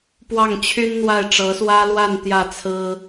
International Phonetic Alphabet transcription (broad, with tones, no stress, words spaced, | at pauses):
pwɑ˥˩ŋt͡ɕʰy˥n n̪wa˥˩ɪ̯ʈ͡ʂɤ˧˥swä˥ lwa˥˧n t̪jä˥˩t͡sʰɹ̩˥